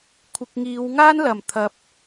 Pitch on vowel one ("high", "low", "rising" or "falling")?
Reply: low